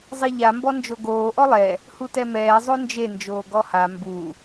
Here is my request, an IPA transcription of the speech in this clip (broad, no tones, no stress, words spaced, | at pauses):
zˤiʎa mbɔnd͡ʒoɡoː ʔɔlˠɛ | hutɛmɛː zˤond͡ʒe nd͡ʒoːɡɔha mbu